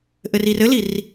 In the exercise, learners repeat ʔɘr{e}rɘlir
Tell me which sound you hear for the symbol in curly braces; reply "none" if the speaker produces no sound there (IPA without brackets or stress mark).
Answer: i